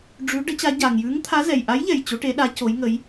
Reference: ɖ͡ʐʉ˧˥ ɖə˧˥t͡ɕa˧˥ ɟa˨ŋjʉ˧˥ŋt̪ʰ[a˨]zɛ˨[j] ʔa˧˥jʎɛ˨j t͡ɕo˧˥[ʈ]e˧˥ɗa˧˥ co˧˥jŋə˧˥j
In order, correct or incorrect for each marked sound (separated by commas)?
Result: incorrect, correct, correct